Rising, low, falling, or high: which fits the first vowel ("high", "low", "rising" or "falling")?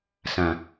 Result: low